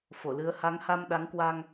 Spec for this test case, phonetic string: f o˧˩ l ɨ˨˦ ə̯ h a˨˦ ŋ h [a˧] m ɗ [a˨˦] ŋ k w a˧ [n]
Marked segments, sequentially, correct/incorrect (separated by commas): correct, correct, incorrect